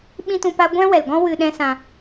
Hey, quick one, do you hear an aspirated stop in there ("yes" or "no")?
no